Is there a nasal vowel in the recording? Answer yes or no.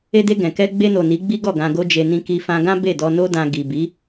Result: yes